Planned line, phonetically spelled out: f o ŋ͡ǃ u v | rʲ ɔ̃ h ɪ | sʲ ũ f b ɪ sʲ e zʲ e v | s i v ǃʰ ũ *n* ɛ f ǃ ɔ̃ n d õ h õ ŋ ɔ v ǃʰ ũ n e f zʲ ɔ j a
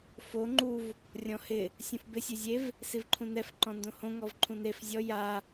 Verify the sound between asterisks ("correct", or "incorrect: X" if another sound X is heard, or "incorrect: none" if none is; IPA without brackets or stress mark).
correct